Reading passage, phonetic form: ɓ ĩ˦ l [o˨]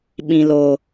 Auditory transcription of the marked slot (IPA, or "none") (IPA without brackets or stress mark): o˦